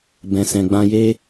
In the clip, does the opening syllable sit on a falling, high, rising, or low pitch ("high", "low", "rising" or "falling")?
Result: low